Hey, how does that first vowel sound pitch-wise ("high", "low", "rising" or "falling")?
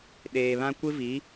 low